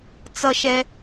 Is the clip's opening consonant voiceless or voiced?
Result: voiceless